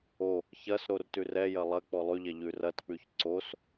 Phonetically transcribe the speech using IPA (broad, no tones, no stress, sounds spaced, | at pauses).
o | ç ɐ s ɾ o r t ʉ r ɛ j ɐ lˠ ɐ k͡p ɔ lˠ ʉ ʎ ɛ ʎ ʉ r ɐ t k͡p ʉ ç ǀ o s